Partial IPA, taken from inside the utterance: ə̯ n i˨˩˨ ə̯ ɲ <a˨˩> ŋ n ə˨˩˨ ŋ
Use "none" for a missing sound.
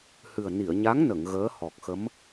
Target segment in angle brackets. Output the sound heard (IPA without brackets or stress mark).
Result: a˧˥